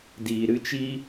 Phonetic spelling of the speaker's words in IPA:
d iː˨ ɾ ɨ˦ t͡ʃ i˦

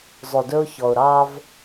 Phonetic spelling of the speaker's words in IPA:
zˤ ɵ˨ d ɵ˦ ʊ̯ ç ɔ˨ ʊ̯ ɾ ɑ˦ v

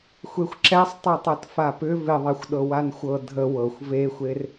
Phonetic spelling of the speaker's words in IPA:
xʷ e xʷ ǁ ɛ sˤ tˤ ɛ tˤ ɤ t f a p ʏ v ɪ ðˤ ɛ xʷ ɗ ɤ w a n xʷ ɤ dʱ ə w ɤ xʷ v e xʷ e r

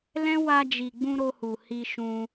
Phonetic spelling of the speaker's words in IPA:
l ɛ̃˦ w a˧ d͡ʒ i˨ ɡ͡b ũ˧ ɾ o˧ h u˨ h i˧ ʃ ũ˧

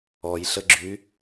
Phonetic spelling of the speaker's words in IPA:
ɔ j ɬ ə ɡ͡ǁ y

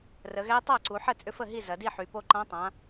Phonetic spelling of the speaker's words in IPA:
r ə˩˧ ɣ ɛ˧˥ tˤ a˥˩ ǀ u˩˧ ħ ə˥˩ t͡sʼ ʏ˧˥ f ə˥˩ ɦ i˥˩ z ɐ˩˧ d i˥˩ ħ y˩˧ p o˧˥ ǃ ã˧˥ tˤ ã˩˧

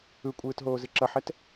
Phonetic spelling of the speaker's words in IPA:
ɯ kʷʼ ɯː t ɦ oː z ɨ ǁ ʌ ħ ɛ t

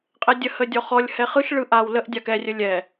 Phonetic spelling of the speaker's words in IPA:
qʼ ɛ dʲ ə h ə dʲ ɔ χ ɔ lʲ h ɛ χ ɯ ʃ ɭ ɯ ʔ a w l ə ʔ dʲ a k ɛ rʲ ə lʲ ɛ

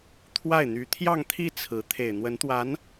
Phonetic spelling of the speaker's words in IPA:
t̪ʰ w a˥˩ ɪ̯ n̪ y˧˥ t̪ʰ j ɑ˥˧ ŋ t̪ʰ i˥˩ t͡sʰ ɹ̩˧˥ t̪ʰ e˨˩ ɪ̯ n̪ w ə˧˥ n t̪ w a˧˥ n

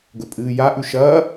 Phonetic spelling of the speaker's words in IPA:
ɡ ɵ pʼ ɨː j a ʔ ʉ ʃ ɐː

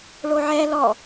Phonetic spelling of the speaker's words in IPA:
ɭ o ʕ ɛ l ɔ

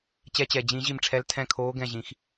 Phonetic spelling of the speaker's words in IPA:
t͡ɕ ɛ˧˥ t͡ɕ ɛ˨˩ d͡ʑ ĩ˨˩˦ ʑ i˦˨ m ʈ͡ʂʰ ɛ˧˥ l tʰ ɛ̃˦˨ kʰ oː˧˥ ɡ ɛ̃˦˨ ʑ ĩ˨˩˦ x

